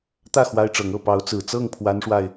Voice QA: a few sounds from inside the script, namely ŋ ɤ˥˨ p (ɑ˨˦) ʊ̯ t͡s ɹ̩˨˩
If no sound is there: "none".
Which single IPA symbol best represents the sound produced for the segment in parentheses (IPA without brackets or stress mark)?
ɑ˨˦